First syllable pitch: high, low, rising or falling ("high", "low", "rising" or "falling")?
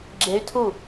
rising